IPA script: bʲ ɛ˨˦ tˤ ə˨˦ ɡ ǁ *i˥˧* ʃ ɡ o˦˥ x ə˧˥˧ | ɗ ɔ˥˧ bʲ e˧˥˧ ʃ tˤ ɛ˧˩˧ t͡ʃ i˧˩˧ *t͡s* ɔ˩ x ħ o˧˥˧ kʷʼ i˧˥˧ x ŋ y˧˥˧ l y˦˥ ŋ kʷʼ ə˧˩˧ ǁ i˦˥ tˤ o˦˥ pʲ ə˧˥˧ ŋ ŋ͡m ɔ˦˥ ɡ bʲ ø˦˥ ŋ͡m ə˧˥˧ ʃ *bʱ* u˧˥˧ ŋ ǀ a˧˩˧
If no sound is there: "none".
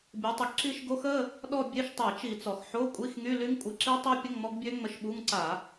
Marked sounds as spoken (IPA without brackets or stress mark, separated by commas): i˥˧, t͡s, ɓ